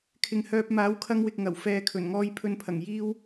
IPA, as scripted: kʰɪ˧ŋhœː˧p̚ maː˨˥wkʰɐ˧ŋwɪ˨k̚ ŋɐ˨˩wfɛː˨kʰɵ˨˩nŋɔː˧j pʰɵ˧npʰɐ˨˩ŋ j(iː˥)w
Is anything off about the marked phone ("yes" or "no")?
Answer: no